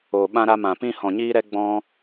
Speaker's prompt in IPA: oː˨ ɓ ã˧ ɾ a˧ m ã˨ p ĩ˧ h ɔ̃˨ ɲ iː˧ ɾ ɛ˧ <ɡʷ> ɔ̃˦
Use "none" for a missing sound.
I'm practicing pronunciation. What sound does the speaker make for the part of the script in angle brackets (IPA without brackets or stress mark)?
ɡ͡b